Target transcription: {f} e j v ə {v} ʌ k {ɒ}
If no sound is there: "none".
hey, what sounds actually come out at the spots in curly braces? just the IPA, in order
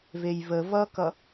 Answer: v, v, ʌ

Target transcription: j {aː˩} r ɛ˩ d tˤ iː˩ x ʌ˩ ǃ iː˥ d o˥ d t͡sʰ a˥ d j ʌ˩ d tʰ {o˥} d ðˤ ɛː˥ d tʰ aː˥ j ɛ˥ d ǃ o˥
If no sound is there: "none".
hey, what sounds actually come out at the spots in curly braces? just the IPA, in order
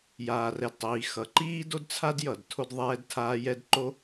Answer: aː˩, o˥

